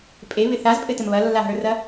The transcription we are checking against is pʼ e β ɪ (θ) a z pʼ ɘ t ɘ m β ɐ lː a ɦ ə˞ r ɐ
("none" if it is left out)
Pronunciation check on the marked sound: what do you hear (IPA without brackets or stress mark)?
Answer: θ